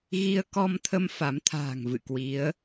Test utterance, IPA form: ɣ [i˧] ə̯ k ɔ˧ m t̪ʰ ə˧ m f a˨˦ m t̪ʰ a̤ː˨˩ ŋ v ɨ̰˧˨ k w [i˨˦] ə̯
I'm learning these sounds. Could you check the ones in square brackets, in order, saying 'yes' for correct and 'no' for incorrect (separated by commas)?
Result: yes, yes